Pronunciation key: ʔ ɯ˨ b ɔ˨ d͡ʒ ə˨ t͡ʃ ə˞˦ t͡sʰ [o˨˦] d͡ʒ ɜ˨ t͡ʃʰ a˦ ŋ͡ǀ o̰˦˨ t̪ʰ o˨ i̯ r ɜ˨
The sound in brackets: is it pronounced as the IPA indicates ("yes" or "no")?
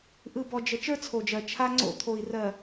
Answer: no